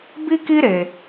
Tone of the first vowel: high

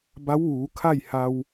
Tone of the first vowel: rising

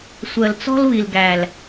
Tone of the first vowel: low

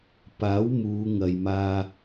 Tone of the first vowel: rising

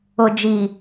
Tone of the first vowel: low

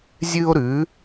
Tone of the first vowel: high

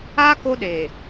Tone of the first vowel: high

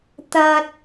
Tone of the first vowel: high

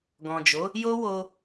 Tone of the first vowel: low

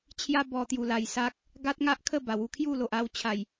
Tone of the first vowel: high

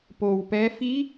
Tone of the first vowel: low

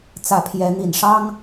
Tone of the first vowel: rising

